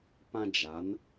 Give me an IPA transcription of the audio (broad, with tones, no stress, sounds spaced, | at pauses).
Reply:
p ã˦ d͡ʒ a˨˦ n